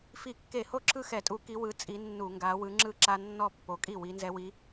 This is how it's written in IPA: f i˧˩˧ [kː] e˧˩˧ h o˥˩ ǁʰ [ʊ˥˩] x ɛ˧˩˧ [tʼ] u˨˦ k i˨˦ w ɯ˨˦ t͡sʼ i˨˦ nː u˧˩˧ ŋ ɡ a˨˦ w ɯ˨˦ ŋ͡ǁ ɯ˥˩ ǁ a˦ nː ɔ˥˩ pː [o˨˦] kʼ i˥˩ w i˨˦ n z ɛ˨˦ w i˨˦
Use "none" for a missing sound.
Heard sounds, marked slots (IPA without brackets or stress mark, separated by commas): kː, ɯ˥˩, tʼ, o˨˦